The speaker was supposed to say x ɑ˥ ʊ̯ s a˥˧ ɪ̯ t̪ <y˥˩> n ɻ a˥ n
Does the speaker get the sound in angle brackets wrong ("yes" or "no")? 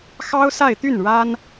no